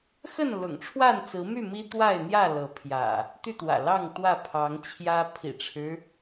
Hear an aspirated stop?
yes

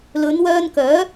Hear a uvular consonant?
no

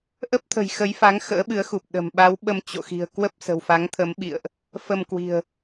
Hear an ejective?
no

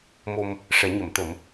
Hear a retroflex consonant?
yes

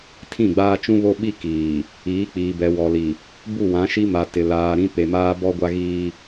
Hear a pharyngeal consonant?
no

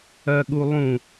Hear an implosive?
yes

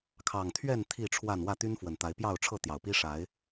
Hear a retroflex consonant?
yes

